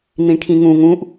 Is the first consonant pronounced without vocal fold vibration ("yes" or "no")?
no